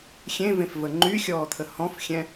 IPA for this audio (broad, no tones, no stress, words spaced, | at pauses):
xʲẽvẽf vəŋ͡ǃyxʲɔː t̪ʰəhɔ̃fxʲɛ̃